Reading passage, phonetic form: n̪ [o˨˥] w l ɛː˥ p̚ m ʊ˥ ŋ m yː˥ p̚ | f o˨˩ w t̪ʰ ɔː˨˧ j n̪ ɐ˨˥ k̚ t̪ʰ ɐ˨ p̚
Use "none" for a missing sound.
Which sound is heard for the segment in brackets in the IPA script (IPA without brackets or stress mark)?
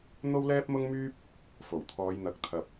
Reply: o˥